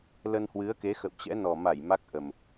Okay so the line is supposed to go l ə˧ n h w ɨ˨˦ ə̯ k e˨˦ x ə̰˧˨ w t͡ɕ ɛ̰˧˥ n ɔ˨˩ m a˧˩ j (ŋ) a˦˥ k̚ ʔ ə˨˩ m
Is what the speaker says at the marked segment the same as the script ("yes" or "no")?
no